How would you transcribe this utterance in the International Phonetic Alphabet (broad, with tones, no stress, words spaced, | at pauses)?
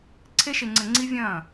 ǀʰe˧ʃe˨ŋ͡ǀɘ˨ŋ͡ǀi˧ vʲɐ̃ː˦˨